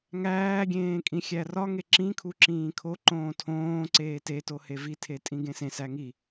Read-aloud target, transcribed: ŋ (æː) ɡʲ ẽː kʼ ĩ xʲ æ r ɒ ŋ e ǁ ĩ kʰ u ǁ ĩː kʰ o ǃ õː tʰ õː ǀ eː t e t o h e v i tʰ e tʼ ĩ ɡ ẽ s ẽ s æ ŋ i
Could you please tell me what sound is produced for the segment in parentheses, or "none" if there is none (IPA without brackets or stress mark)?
æː